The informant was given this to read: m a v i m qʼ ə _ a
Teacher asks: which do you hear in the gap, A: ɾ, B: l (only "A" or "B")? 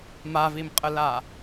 B